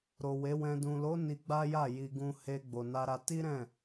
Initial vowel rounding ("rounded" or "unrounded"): rounded